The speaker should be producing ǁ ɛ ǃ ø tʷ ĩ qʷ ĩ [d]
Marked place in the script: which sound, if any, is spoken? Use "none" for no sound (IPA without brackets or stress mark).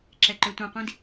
d